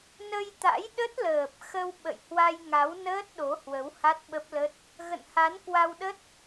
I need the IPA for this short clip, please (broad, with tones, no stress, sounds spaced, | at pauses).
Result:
n ə˧ j t̪ a̰˧˥ j ɗ ə˦˥ t̚ l əː˨˩ p̚ x ə˧ w ɓ ə̰˧˨ j h w a˧ j ŋ a˨˦ w n əː˦˥ t̚ ɗ o˨˦ h w ə˨˦ w h a˦˥ t̚ ɓ ə˦˥ p̚ l ə˦˥ t̚ | ɣ ə̰˧˨ n h a˨˦ n k w a˧ w ɗ ə˦˥ t̚